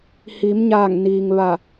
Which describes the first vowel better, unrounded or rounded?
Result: unrounded